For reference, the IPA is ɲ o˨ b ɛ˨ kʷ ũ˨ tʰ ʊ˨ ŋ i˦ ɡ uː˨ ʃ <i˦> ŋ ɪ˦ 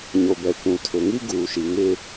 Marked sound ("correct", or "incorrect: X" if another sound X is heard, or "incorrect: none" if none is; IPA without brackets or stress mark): incorrect: i˨